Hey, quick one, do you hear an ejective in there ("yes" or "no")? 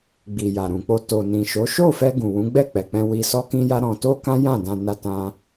no